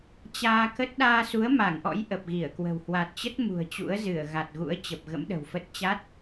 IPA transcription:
t͡ɕaː˧kə˦˥t̚ ɗaː˧su˨˦ə̯ ma˧˩ŋʔɔ̰˧˥j ʔə˨˩p̚ɣi˧˩ə̯kwə̤˨˩w hwa˨˩t̚t͡ɕə˦˥t̚ mṳ˨˩ə̯t͡ɕṵ˧˥ə̯zɨ˧˩ə̯ ɣa˨˩t̚ɣṵ˧˥ə̯t͡ɕə˨˩p̚ ɣə̰˧˥mɗə̤˨˩wfə˦˥t̚ t͡ɕa˦˥t̚

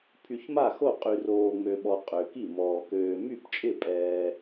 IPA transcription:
pʰy˨çma˥˩xo˥˩ qʼy˨roː˨ŋ͡mø˨ɓɔ˨ qʼø˨ki˥˩mɔː˨ køː˨ my˥˩pt͡ʃʼɪ˥˩pʼɛː˨

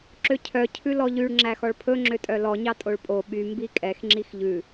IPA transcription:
ǁøcʰœ cʰʉlɔʎyɭ ŋ͡ǁæxɔɭpʰɵ ŋ͡ǁøtʼœlɔ ɲɑtʼoɭpʼo ɓy mbikʼɛx ŋ͡ǁixʎʉ

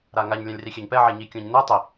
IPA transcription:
ɾaŋaɲ lʲãlʲrixʲɛɲpɛ ʕeɲikʲõɲnɛ tˤi

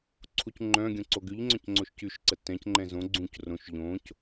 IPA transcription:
ǀʰucŋ͡ǃœ̃ɡʲõ ǀoɡyʎŋ͡ǀœ̃c ŋ͡ǀoʃcyʃǀə tɛ̃cŋ͡ǃɛ̃ zõ ɡ͡ǀũc rõʃ ʎõc

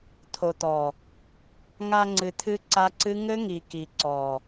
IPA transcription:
t̪ʰo˨t̪ɔ˨ | ŋa˧ŋ͡ǀɨ˨t̪ʰɨ˧ ǀa˦ǀɨ˦ ŋɘ˦ŋi˨ ki˨ǀɔ˨

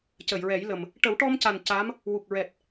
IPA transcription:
cə˨˩˨jɹɛ˨˩˦jlə˨˩m | ʈə˨˩˦wʈɔ˧mca˨˩n ca˧˥m | wu˨˩k̚ɹɛ˨˩t̚

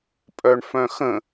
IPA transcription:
pʼœɳfœ̃xə̃

